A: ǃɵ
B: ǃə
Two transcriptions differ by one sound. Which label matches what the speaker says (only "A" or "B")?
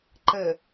B